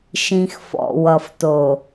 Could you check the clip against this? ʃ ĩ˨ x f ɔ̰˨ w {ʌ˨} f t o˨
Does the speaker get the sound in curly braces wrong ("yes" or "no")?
no